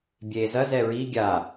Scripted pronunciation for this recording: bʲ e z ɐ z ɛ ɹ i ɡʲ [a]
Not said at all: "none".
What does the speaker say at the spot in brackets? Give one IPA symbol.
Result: a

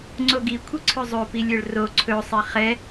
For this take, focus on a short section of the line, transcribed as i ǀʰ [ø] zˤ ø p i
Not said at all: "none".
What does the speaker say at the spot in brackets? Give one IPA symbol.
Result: ø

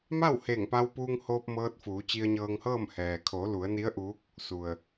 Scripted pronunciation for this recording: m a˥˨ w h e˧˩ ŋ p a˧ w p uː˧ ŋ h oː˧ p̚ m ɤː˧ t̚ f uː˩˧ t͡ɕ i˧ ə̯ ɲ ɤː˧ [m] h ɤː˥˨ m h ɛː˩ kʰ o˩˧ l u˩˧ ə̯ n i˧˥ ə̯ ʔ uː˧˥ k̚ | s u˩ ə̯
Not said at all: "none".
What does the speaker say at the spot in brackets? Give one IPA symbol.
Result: ŋ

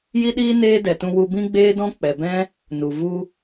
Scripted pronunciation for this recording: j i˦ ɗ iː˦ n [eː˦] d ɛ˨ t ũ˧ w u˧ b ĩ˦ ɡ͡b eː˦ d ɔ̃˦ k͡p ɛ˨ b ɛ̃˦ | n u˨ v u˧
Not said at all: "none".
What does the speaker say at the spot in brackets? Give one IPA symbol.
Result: eː˦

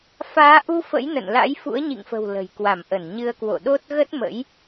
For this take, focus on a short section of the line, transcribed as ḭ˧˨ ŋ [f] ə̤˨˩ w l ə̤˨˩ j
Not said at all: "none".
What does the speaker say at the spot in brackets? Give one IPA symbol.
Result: f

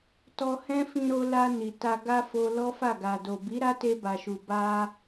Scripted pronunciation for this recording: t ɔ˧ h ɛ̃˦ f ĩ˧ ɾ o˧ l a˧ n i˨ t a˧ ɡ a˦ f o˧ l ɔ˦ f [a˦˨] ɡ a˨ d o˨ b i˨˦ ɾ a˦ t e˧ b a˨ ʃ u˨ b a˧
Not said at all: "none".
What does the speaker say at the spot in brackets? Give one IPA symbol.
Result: a˦˨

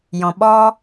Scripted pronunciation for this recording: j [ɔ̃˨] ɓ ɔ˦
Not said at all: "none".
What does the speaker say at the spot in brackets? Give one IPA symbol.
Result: ɔ̃˨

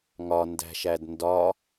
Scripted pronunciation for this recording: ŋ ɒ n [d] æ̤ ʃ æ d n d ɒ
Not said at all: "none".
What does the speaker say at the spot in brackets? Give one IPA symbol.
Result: d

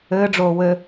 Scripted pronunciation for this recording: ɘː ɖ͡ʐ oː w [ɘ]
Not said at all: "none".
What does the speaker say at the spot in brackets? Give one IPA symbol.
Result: ɘ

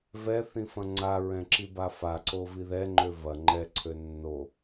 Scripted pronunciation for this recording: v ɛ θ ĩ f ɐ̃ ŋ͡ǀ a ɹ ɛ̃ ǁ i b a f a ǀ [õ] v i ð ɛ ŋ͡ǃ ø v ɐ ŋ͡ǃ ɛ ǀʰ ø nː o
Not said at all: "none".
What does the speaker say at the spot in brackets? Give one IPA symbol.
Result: o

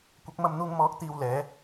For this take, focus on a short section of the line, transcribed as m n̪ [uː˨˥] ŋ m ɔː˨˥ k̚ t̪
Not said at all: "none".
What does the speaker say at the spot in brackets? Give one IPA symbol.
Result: uː˧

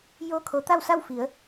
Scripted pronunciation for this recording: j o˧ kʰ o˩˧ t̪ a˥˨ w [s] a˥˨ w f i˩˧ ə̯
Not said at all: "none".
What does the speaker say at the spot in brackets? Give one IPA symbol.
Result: s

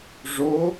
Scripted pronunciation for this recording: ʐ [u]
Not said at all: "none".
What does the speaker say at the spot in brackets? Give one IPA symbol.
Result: o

